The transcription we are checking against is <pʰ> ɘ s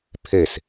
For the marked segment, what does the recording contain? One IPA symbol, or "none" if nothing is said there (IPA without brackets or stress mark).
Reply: pʰ